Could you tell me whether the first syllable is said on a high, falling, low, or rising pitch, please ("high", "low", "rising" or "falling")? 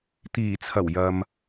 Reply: low